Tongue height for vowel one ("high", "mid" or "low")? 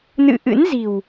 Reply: high